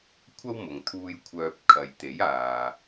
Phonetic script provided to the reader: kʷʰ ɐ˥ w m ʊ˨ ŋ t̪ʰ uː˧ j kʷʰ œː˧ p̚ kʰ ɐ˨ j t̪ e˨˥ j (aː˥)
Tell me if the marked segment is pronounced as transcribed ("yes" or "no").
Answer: no